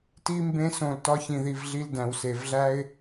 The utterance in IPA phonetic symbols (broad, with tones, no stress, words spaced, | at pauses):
ti˦mbẽ˦sõ˧l tɒ˦çĩ˧ði˧vɮi˦l dæ̃˧wse˧v ɮæ˦ɪ̯